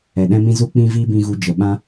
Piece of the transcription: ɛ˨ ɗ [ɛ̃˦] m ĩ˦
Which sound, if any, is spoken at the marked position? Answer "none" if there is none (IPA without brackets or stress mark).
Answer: ɛ̃˦